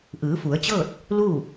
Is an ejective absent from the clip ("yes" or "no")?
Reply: yes